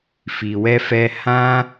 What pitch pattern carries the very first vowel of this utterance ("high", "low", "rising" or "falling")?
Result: low